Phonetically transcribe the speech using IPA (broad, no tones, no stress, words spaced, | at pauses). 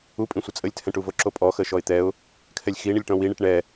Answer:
u pʼĩsʷət͡sʼəlʲtʰɛ̃ʈ uvoǁopʼɔ xəʃɔɪ̯t̪ɛʊ̯ | kʰɛlʲxiɳɪlʲ ʈɔ̃wiɳiʈ ɳɛ